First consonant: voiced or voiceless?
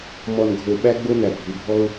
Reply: voiced